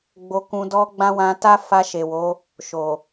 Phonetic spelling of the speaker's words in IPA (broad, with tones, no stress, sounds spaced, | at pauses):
ɡ͡b o˧ k ũ˧ d ɔ˦ ɡ͡b ã˦ w ã˧ t a˦ f a˧ ʃ e˨ w o˨˦ | ʃ o˨